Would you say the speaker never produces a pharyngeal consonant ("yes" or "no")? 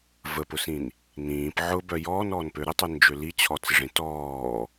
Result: no